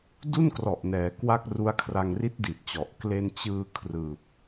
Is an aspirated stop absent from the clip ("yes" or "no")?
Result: no